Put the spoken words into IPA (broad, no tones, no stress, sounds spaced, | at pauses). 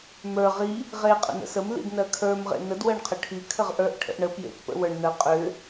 m ə˞ ʁ i | ʁ e qʼ ə̰ n ə̰ s ə m l ḭ d n ɜ kʰ ə˞ m ʁ ḛ n ə d w ɜ ɳ qʰ ə ʈʰ i kʰ ə ʁ ʔ ə˞ ʔ ʈʰ ə̰ ʔ ɳ ə p j ḛ t p ə̰ w ə˞ ɳ n ɜ qʼ ʏ